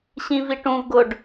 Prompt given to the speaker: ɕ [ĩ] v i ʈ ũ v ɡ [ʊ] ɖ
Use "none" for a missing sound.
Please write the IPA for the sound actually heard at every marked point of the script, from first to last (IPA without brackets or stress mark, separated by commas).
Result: ĩ, ʊ